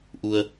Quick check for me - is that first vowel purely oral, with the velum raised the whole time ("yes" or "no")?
yes